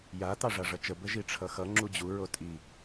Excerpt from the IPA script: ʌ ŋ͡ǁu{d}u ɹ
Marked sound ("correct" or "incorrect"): incorrect